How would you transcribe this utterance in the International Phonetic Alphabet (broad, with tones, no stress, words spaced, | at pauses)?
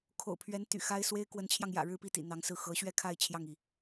kʰo̰˨˩ʊ̯pʰɥɛ˧˥n t̪y̰˨˩xa˥ɪ̯ swe˥ɪ̯kwə˧˥nt͡ɕʰjɑ˧ŋjä̰˨˩ ɻɻ̩˥˧pi˥˩t̪ḭ˨˩ n̪ɑ˧˥ŋsɹ̩˥˩ xɤ˧˥ɕɥɛ˥˧kʰa˥˧ɪ̯ t͡ɕʰjɑ˥˩ŋi˩